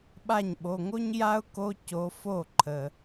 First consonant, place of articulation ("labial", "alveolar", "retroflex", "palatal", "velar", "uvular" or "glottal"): labial